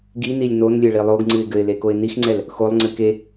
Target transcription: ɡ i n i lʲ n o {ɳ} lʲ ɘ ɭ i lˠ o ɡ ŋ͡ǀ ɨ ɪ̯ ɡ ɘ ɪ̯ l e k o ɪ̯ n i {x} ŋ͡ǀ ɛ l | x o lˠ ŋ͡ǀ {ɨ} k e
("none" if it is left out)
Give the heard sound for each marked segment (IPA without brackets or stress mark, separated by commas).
n, x, ɨ